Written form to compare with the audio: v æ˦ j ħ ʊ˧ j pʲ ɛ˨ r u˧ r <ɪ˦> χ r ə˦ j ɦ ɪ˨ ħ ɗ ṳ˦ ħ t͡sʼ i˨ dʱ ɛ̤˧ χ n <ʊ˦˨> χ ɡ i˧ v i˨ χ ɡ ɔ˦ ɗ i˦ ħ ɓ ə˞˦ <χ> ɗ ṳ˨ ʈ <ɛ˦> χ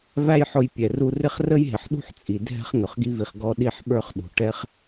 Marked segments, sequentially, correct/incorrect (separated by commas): correct, incorrect, correct, correct